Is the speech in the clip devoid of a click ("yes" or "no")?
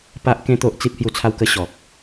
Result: yes